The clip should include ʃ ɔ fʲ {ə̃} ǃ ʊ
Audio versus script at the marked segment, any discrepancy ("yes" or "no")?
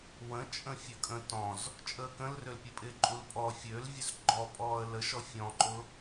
yes